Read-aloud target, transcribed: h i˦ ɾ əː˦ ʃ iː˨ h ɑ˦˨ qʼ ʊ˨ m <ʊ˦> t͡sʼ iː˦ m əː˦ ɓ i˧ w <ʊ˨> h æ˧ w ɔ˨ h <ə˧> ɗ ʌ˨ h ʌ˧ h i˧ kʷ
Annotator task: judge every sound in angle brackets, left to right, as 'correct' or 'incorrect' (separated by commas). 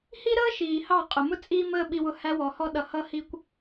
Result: correct, incorrect, incorrect